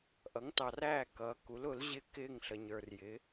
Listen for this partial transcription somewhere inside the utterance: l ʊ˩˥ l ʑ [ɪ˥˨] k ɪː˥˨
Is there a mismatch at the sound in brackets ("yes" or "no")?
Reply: no